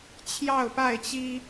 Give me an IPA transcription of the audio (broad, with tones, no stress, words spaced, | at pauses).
t͡ɕʰjɑ˥˨ʊ̯pa˥˨ɪ̯t͡ɕi˦